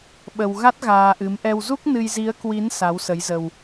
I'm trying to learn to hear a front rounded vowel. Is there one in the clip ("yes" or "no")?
no